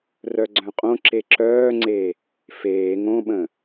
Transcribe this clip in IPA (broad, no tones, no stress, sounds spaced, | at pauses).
r œ ɡ͡ǀ œ̃ qʼ õ ǁ e ǁ œː ŋ͡ǀ e | f eː ŋ õ ɓ ə̃